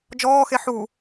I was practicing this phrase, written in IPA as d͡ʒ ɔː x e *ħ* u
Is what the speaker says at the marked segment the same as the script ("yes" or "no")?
yes